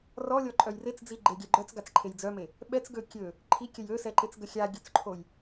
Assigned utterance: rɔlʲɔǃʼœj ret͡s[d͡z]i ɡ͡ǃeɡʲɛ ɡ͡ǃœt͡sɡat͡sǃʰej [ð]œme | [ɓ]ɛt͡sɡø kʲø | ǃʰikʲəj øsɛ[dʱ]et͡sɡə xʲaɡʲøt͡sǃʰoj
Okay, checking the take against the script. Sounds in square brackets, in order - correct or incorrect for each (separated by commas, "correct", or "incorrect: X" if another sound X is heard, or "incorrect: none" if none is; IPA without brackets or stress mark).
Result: correct, incorrect: d͡z, correct, incorrect: ǃ